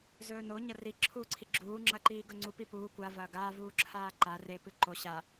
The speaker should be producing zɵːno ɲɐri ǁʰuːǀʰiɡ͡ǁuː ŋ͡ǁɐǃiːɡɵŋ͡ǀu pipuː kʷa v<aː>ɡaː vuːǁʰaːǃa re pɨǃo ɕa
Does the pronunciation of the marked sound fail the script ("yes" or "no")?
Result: yes